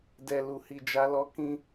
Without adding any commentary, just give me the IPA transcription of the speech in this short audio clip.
dɛ˨lu˨ hi˨d͡ʒa˨˦lɔ˧ kĩ˧

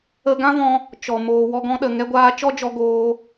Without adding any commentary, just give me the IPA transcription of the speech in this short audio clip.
ə˧ ɡã˦vɔ̃˧ | t͡ʃɔ˨ moː˨wɔ˧ɡɔ̃˧ɗə˨ ŋɛ˧ɡʷaː˧ t͡ʃɔ˦d͡ʒɔ˧ɡoː˧

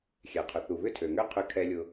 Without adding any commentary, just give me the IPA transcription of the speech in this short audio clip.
xʲɛ˩qʰʊ˩ θu˩βʏ˦tʰø˩ŋø˦ qʰʏ˨kʰɛ˨lʲʊ˨

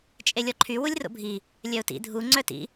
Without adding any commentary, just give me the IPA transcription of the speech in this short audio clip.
t͡ʃʼelʲɔǃʰy wulʲro̰bʱi | lʲœʊ̯tḭ dʱu ŋ͡ǀœtḭ

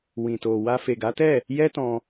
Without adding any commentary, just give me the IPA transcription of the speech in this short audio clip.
wĩ˨to˨wa˧ fe˨ɡa˨˦tɛ˦˨ | jɛ˦tɔ̃˧

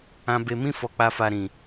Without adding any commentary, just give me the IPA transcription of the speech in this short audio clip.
ã˧be˧mĩ˦ fɔ˧k͡pa˧fa˧ ɾĩ˨

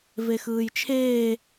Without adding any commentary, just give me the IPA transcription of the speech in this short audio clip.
vexɯːjt͡ʃʰeː

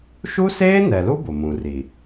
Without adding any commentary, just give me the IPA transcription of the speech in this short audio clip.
ʃu˦seː˦nɛ˨lu˦ bʊ˨mũ˨ri˨

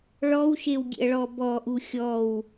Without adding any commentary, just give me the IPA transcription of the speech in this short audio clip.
ɭɔwʃewɡʲḛɐ̯ɭɔ bɔʔu xʲɔw

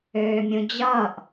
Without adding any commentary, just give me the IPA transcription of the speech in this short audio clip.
øːmʲũd͡ʑʌːʔ

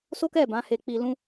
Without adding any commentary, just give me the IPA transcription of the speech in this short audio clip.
so˦kɛ˦˨ bã˨˦he˧k͡pi˧lũ˦

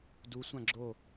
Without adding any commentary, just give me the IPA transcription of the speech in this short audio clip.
dusʷã ɡ͡ǁo

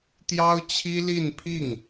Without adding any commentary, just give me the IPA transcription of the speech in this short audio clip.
t̪jɑ˥ʊ̯t͡ɕʰi˥li˥˧n pʰi˥˩ŋ

